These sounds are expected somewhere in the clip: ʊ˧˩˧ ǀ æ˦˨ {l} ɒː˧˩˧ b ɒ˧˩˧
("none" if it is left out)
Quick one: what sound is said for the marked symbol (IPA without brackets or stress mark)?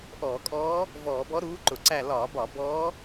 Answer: l